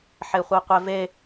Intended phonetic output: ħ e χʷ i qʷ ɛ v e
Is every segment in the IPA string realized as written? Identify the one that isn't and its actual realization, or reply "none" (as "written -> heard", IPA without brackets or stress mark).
none